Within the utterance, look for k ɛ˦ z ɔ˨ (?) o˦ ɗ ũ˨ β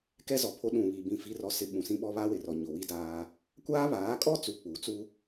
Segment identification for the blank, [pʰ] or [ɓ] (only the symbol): pʰ